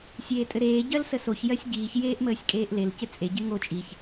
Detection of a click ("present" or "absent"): absent